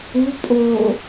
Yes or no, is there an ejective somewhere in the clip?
yes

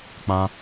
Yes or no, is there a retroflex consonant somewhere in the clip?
no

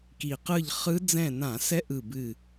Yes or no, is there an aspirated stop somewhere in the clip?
no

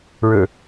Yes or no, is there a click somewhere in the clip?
no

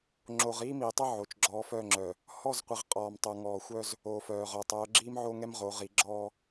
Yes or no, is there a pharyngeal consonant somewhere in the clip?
yes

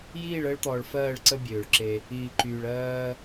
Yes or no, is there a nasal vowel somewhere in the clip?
no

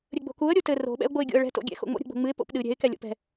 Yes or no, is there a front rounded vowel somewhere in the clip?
no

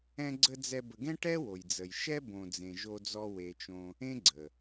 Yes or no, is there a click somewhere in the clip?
yes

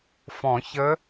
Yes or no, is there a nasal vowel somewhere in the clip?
yes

